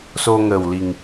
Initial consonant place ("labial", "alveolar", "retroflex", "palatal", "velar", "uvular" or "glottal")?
alveolar